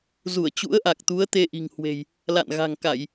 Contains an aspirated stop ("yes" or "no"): no